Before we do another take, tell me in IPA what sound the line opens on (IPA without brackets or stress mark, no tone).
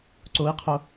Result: ǀ